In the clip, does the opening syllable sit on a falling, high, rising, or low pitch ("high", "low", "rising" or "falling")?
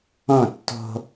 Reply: falling